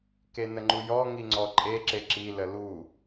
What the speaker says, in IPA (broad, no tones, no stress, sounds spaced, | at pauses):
k e n ə ŋ͡ǃ u j ɔ ŋ i ŋ͡ǀ ɔ ǃʼ e ǁ e ǁ i l ə l u